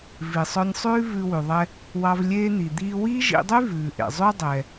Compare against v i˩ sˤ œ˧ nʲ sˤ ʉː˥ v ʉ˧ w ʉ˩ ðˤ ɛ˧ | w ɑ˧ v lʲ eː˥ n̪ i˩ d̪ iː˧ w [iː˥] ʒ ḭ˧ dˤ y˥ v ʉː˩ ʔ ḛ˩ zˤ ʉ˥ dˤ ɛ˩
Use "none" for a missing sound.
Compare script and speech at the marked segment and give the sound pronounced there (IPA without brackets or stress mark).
iː˥